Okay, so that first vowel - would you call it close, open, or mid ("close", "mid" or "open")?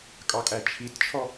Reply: open